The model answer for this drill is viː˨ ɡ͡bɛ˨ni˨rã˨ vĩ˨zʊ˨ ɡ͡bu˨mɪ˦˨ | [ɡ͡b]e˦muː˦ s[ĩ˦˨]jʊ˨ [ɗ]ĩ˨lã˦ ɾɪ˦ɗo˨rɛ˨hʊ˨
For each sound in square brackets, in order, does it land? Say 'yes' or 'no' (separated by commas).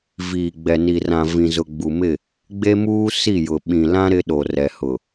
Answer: yes, no, no